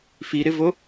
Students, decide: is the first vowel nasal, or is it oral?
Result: oral